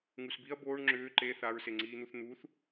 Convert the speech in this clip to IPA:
ŋ u s b i ɐ̯ b oː ɳ ŋ͡ǁ ʏː ǃ e θ a ɹ s e ŋ͡ǀ iː n̪ u θ n̪ u θ

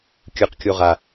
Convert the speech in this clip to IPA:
kʲ ɯ q kʲ o ʁ a

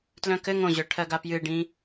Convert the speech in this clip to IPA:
t l œ̃ k ɘ ŋ õ ʑ œ ʈʰ ɜ ɡ a p j ɨ ɖ ĩ

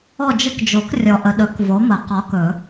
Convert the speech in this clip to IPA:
ɔ˦˨ d͡ʒ ə˦ k d͡ʒ o˨˩˦ k rʲ ɔ˨ ʔ ə˨ ɗ ɵ˨˩˦ k v o˨˥ m ə˨˩˦ q ɒ˨˥ k ɵ˨˩˦

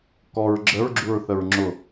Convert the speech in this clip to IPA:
k ɔ ɹ ɡ͡ǁ ə ɹ ɡ͡ǁ u ɹ θ ə ɹ ŋ͡ǁ ʊ

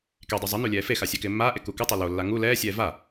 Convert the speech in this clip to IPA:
k e dˤ u zˤ ɪ n u lʲ ɛː f e x a sʲ e k ɪː mː aː ʔ e k u k ɪ tˤ ɛ l o lː a ŋ u l ɛː sʲ ɛː v a

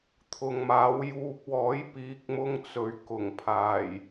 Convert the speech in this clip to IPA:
t̪ʰ ʊ˨ ŋ m aː˨˥ w j uː˧ k̚ w ɔː˨˥ j p iː˨˥ k̚ m ʊ˧ ŋ t͡s ɵ˨ ɥ k ʊ˨˩ ŋ pʰ aː˨˩ j

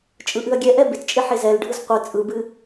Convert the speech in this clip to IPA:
t͡ʃʼ ɯ ʔ ɨ ɐ̯ ɡʲ ɛ ʔ ɛ b ɪ t t͡ʃʼ ɪ ħ e z ɛ l ɖʱ ɯ z qʷ ɯ t͡sʼ ɯ b ɨ

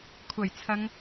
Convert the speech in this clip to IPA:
kʷʰ ɐ˨˩ j t͡sʰ ɐ˨˧ ŋ

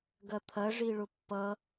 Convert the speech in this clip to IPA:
ɡ ɐ t̪ʰ ɐ ʐ i ɭ ʊ pː ʌ

